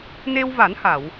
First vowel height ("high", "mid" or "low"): mid